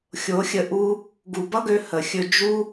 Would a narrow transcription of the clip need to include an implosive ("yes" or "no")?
no